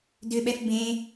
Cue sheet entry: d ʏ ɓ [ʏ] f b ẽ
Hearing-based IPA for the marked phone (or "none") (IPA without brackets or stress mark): ɛ